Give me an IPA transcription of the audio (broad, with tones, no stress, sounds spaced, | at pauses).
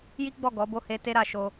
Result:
j i˦ ɡ͡b ɔ˦˨ ɡ ɔ˨˦ b o˦˨ h e˧ t e˦ ɾ a˧ ʃ o˦